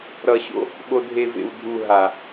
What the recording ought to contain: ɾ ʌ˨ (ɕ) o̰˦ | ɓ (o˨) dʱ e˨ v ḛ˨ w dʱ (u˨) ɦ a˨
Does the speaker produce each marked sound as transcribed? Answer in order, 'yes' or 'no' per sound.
yes, yes, yes

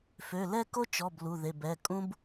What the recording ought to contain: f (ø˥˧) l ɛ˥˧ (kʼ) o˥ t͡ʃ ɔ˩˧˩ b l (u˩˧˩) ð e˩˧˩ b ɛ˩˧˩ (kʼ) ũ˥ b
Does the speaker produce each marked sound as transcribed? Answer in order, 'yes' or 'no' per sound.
no, no, yes, yes

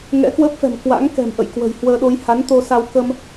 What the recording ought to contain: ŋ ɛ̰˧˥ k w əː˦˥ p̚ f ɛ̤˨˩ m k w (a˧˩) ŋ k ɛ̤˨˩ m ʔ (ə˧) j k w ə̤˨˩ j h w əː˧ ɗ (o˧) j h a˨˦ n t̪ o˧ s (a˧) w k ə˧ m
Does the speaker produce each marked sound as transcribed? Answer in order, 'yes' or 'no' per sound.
no, no, yes, yes

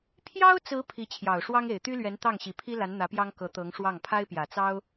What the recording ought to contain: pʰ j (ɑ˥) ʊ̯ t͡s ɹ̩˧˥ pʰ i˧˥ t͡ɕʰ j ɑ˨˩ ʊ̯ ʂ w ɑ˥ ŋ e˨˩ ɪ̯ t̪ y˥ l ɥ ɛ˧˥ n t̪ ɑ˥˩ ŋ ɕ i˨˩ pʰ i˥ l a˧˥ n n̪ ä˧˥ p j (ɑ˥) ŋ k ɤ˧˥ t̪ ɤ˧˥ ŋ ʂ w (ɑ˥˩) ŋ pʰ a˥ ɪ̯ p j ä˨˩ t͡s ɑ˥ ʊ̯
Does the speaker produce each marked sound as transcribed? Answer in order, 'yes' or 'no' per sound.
yes, yes, yes

